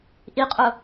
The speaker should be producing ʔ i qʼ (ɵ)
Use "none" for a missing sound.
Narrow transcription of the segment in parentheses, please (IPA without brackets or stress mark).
ʊ